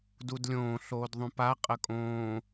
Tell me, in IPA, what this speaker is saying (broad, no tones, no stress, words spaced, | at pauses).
dudlʲõː ɬoːdðˤũpa qʼəkʼõː